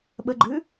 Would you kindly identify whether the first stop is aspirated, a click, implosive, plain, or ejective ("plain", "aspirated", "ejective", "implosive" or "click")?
implosive